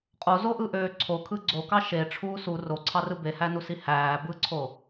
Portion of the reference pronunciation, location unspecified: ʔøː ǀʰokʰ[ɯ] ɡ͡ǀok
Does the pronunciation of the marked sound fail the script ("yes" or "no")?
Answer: no